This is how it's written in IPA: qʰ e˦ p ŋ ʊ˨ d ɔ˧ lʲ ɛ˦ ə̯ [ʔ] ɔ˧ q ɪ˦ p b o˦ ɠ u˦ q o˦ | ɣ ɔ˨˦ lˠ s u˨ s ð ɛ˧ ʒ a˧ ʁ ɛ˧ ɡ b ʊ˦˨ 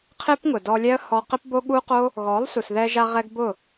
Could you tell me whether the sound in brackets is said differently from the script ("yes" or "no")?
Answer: yes